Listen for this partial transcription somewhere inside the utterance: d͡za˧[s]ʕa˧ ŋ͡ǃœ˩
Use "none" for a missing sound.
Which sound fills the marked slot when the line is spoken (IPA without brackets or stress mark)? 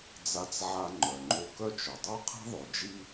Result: t͡s